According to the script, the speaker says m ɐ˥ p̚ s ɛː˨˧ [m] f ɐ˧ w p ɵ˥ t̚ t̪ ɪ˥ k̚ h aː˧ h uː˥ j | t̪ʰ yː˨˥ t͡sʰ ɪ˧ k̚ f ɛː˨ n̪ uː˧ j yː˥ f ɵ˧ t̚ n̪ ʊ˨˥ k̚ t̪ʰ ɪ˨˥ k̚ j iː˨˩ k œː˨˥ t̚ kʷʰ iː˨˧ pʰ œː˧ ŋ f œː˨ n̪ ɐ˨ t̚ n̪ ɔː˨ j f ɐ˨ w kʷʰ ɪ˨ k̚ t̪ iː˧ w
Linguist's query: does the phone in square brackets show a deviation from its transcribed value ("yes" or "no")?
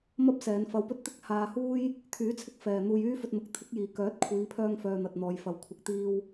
yes